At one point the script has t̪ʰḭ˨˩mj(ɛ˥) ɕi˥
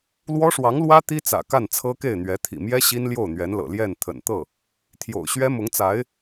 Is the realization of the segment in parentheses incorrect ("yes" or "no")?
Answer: no